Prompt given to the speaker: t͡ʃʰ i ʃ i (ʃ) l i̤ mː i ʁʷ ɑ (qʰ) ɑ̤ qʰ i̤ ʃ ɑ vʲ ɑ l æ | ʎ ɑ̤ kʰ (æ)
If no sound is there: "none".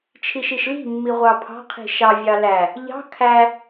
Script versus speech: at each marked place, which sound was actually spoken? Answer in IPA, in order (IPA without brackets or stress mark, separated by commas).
ʃ, pʰ, æ